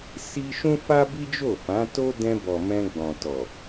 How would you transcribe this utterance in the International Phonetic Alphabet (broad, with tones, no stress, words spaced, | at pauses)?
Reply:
si˦ ʃũ˦fa˦ bi˦d͡ʒo˦˨fã˨˦to˦ dɛ̃˧ bɔ˨mɛ̃˧ ɡ͡bɔ̃˨tɔ˨